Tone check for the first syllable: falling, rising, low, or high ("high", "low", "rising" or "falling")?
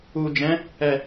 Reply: low